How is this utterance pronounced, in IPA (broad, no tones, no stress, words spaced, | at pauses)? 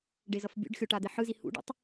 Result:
ɖezʌfbʲṵɖxʲo ʈad̪eħɯzi hṵɖḛtˤ